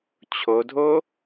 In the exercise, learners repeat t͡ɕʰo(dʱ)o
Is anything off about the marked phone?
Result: no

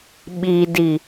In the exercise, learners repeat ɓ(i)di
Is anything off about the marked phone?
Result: no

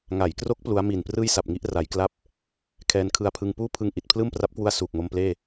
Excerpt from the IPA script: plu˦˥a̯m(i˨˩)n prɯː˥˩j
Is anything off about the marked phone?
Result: no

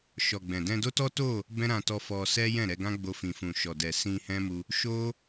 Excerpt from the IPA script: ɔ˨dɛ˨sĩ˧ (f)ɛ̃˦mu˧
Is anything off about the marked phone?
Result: yes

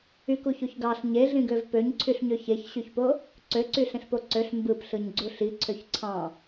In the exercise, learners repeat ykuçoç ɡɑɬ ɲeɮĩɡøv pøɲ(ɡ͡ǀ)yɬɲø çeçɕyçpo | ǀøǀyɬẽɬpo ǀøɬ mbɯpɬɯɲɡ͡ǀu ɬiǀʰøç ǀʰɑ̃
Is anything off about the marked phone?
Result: yes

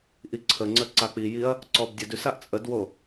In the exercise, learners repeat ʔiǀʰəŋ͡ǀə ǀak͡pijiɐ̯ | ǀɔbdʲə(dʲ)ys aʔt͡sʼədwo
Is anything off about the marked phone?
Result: yes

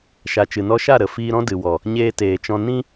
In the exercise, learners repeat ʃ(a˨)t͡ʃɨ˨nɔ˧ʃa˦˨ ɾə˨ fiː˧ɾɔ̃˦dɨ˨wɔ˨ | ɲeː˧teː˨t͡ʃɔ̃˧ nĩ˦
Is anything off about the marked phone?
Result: no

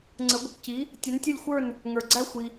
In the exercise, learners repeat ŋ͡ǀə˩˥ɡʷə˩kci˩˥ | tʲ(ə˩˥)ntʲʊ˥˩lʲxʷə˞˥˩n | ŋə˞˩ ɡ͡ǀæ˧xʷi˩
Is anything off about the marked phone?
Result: yes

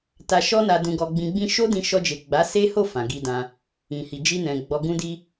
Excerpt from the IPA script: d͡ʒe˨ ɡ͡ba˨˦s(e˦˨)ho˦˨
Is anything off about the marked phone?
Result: yes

